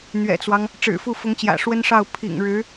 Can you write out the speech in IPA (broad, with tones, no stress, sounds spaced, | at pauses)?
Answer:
n̪ ɥ ɛ̰˨˩ t͡s w ɑ˦ ŋ | ʈ͡ʂ ɻ̩˨˩ f u˥˩ f ʊ˧˥ ŋ t͡ɕ j ä̰˨˩ ʂ w ə˥ n ʂ ɑ˥˩ ʊ̯ pʰ ḭ˨˩ ŋ ɻ ɻ̩˧˥